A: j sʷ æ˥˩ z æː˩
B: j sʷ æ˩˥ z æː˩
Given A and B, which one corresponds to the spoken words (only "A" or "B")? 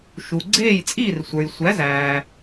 B